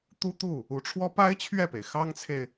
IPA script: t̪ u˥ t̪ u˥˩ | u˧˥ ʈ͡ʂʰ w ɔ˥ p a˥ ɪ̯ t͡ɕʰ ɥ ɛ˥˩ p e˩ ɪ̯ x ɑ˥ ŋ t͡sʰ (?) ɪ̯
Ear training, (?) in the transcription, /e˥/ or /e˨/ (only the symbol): e˨